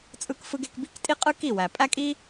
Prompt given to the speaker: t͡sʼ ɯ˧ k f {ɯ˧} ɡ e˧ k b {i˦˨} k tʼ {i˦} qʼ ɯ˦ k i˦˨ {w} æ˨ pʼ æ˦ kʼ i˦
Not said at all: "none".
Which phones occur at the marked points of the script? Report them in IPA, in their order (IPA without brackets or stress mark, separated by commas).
ɯ˧, i˦˨, i˦, w